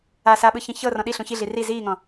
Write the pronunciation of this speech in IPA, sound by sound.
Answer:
a saɓɯçĩ çɤrɔ̃ ɗiɬũ çiɮi ri ziːŋɔ̃

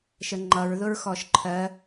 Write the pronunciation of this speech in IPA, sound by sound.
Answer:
ʃəŋ͡ǃʌɹðʊɹ xɔʃǃʰɜ

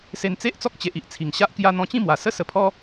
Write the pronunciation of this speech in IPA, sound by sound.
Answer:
se˧nt͡se˦ʔ t͡sɔ˦k̚t͡ɕe˨ʔi˨ʔ t͡sʰi˨˩ŋɕa˦ʔkja˦ n̪ɔ̃˧t͡ɕĩ˥˧mwa˨˩ sə˦sə˧pʰɔ˦

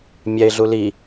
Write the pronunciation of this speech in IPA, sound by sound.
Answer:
mʲɛɪ̯ɮu li

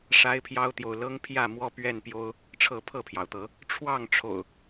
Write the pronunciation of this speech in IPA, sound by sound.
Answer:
ʂa˦ɪ̯pʰjɑ˦ʊ̯t̪jo˨ʊ̯ lɤ˦ŋpʰjä˥˨ mwɔ˦pɥɛ˥˨npjo˦ʊ̯ | ʈ͡ʂʰɤ˥˨ pʰɤ˥˨pʰjɑ˩ʊ̯t̪ɤ˨˦ | ʈ͡ʂʰwɑ˥˨ŋʈ͡ʂʰo̰˨˩ʊ̯

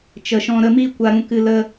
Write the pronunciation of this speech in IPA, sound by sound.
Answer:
t͡ʃə˧ʃɔ̃˦ ɾə˧mi˦ kʷa˦ɾũ˦kɨ˦ lə˦

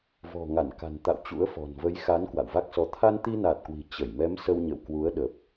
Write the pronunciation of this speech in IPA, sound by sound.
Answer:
vɔ̤˨˩ŋa˧˩nka̤˨˩n t̪a̰˧˨w t͡ɕṵ˧˥ə̯fɔ̤˨˩n və˨˦jxa˨˦n kwa̰˧˨wva˦˥k̚sɔ˧ t̪ʰa˧nt̪i˧naː˨˩t̚kwi̤˨˩ t͡ɕə˧˩j mɛ˨˦msə˧w ɲə̰˧˨wkwu˨˦ə̯ ɗə˨˩p̚

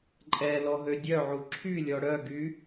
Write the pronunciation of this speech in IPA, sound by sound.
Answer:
ǃʼɛ lɔɦødʲœʕu ǁʰylʲɔ ɽœɡy

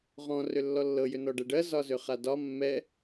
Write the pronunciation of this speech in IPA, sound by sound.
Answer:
ʁɔ̃ rʏlːɔlːɤ jʏnɔɖɛɖɜ zɒzʏχadɒ mːɛ

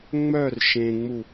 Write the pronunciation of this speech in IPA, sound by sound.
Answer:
ŋ͡mœr ʃẽŋ͡mu

